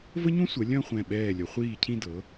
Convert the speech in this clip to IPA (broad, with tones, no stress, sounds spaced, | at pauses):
v ə˥ ɲ ũ˥ sʷ ə˩˧ lʲ œ̃˥˧ χʷ ɛ̃˧˩ ɓ ɛː˧˩ lʲ ə˩˧ χʷ iː˧˩ cʰ ĩ˧ d ɤ˩˧